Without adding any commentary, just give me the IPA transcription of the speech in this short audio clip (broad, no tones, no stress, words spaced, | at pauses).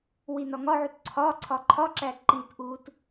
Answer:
winɒŋɒʕut ǀʰɒ ǀʰɒǃʰɒǁæ ǃitʔuːt